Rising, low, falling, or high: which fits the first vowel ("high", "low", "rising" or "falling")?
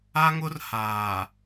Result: high